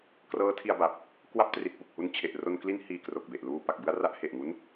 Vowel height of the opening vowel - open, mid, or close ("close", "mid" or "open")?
mid